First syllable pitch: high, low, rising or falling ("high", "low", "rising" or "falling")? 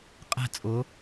falling